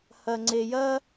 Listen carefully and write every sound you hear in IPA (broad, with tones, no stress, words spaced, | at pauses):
hɐ˩ŋ͡ǀe˩jɐ˥